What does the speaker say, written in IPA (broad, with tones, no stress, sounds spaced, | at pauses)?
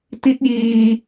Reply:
t i˦˥ t̚ j iː˧